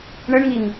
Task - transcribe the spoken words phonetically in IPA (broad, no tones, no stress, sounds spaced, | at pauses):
ɳ ɘ ɳ ŋ i ŋ